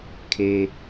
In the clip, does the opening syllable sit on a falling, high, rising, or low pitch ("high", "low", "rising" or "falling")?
low